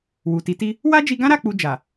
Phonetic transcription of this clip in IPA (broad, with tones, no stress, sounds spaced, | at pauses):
w u˨ t i˨˦ t i˦ | w a˦ d͡ʒ i˧ ɡ ã˦ ɾ a˦˨ k͡p u˧ d͡ʒ a˨